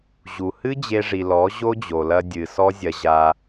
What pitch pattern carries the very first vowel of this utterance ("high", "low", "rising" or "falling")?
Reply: low